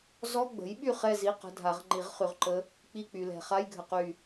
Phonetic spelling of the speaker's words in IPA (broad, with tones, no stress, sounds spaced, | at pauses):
z ɔ˧˥˧ ɡ͡b ə̤˩˥ j ɓ y˥˨ χ ɛ˥˨ z i˧˥˧ q ə̤˧˥˧ dʱ a˨˩˦ ʁ ŋ͡ǃ i˨˩˦ ʁ χ y˨ ʁ ǃ ə˧˥ | k͡p i˥˨ k͡p y˨ l ɛ̤˨ χ a˧˥˧ j ɡʱ ə˨ q y˥˨